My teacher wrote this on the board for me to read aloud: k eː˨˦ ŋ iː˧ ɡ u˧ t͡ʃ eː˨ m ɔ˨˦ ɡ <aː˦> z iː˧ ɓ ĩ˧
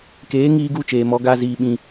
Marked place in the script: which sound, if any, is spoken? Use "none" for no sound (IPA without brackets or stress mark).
aː˦